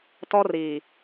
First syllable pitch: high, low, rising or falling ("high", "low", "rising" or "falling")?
high